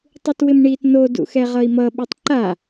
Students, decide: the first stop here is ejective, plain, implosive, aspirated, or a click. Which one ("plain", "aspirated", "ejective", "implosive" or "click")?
plain